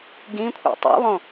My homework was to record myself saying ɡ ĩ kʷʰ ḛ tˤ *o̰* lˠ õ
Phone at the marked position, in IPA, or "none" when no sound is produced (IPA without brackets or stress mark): o̰